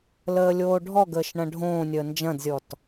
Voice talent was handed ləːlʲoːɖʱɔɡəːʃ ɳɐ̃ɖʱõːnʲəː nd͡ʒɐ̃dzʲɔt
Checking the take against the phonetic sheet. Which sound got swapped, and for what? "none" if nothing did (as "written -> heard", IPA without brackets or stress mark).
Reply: none